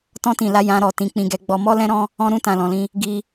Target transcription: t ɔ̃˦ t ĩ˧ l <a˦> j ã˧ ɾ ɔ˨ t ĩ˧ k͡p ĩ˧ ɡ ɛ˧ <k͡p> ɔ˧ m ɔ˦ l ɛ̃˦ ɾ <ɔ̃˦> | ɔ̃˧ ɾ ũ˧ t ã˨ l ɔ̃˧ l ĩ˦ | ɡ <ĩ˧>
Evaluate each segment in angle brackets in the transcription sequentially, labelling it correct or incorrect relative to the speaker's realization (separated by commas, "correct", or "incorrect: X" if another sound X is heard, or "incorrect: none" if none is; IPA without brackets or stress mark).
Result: correct, incorrect: ɡ͡b, correct, incorrect: i˧